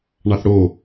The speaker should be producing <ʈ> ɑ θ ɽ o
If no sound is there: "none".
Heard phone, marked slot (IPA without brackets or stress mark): ɳ